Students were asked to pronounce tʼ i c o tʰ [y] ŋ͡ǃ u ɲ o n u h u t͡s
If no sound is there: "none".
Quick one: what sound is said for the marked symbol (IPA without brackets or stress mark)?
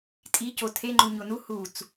e